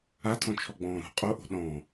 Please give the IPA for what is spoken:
a tʰ ɔ̃ t͡ʃʰ ɔ ɡ͡b ɔ̃ː ɾ ṳ qʼ o ʔ o̤ ɗ ɔ̃

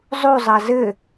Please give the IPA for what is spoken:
zˤ u zˤ ɑ z ɘ

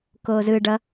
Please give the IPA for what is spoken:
k oː z ɯ ɖ ʌ

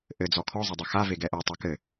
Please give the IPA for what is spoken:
ʔ ɘ d͡z ɔ kʰ ɔ zˤ ɐ dˤ ɐ x a v e ɡ ɛ ʔ o tˤ e k ɘ

